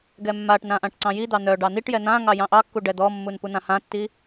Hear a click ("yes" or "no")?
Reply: yes